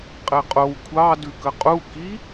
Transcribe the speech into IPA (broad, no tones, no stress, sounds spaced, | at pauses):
qʼ ɛ qʼ o w kʷʰ ɑ d ʉ k ə qʼ u k i